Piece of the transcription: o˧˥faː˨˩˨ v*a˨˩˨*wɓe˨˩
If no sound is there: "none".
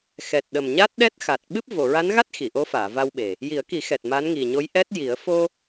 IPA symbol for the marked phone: a˧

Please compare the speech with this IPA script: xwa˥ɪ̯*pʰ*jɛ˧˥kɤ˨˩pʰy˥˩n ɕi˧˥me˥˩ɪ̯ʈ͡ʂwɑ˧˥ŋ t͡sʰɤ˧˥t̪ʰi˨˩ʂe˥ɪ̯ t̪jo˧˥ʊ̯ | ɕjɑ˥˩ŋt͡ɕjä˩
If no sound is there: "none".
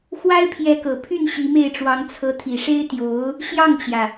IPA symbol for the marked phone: pʰ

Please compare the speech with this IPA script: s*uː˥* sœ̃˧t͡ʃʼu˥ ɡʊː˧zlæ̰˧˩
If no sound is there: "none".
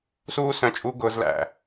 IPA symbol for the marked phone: uː˥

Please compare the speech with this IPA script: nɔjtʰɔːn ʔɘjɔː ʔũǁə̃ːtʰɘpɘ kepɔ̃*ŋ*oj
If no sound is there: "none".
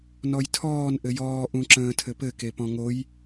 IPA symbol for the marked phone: ŋ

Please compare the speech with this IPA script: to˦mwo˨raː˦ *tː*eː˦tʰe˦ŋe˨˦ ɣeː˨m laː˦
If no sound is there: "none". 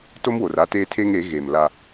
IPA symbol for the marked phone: t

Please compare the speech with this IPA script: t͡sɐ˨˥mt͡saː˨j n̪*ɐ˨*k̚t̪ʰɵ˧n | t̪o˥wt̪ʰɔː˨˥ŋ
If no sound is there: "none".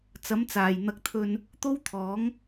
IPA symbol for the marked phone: ɐ˧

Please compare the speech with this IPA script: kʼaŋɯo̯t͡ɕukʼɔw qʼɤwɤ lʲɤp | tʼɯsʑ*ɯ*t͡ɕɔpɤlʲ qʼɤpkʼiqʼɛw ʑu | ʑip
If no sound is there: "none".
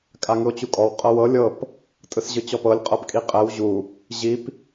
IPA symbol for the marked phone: ɯ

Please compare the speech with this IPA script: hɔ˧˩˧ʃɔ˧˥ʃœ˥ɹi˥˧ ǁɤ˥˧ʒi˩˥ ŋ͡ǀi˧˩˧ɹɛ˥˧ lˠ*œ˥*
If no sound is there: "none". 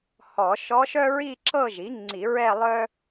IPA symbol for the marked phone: œ˥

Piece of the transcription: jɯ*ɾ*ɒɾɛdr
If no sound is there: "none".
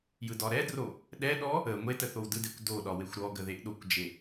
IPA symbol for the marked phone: d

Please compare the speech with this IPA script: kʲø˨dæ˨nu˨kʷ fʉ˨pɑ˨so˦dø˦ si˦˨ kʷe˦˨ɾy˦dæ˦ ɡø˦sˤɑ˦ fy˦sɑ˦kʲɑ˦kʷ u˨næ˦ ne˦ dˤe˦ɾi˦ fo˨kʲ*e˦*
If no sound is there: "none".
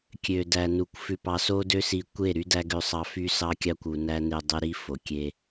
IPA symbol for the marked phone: e˦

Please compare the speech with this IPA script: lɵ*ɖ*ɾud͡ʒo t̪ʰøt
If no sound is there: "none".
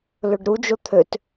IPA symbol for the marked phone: ɖ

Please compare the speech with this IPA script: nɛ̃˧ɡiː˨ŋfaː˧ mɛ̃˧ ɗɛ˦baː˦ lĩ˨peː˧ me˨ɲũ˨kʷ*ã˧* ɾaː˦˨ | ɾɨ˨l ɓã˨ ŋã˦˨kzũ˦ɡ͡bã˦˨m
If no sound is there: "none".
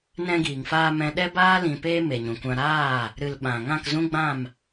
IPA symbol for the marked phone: ã˧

